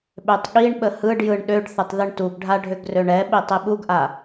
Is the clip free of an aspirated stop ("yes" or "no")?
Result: yes